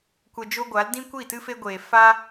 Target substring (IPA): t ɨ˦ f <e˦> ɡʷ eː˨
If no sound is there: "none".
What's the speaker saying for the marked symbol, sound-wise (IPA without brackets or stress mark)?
e˦